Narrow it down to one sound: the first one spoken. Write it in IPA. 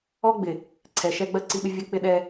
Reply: ɔ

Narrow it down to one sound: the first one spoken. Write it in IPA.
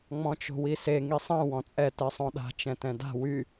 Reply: ŋ͡m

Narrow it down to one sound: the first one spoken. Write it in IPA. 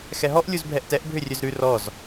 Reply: x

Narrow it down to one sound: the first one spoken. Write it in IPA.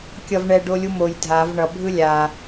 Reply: kʲ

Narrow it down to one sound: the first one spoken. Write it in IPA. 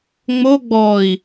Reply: ŋ͡m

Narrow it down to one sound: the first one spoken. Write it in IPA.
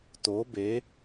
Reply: t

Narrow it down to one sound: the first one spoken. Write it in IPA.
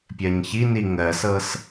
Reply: pʲ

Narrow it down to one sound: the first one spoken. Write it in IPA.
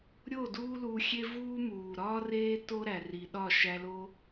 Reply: ɾʲ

